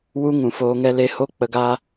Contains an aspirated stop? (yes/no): no